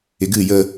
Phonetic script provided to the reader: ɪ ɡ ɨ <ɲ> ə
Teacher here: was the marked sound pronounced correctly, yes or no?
no